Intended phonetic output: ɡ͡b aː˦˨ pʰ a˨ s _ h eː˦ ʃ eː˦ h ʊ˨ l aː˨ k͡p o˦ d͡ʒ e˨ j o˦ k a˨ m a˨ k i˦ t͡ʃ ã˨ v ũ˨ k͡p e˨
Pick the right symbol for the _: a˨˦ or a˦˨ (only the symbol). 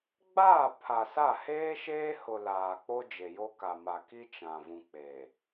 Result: a˦˨